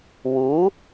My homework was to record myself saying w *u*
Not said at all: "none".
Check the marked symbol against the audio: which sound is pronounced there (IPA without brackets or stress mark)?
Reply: u